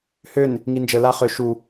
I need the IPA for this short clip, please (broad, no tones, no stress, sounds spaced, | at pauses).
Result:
h ø n | ŋ i n d͡ʒ ə l a χ ø ʃ u